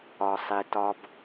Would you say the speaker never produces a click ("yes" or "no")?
yes